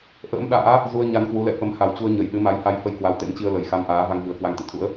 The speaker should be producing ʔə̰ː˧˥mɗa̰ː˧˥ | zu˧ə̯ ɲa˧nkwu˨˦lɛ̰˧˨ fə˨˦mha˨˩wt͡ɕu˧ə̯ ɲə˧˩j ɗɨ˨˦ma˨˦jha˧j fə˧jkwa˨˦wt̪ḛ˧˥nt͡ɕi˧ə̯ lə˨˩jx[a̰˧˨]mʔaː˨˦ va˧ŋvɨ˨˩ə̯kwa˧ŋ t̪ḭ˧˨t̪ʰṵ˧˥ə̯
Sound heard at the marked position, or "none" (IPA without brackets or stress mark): a˧